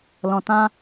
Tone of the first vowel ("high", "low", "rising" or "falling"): low